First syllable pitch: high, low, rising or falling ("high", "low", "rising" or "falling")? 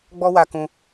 high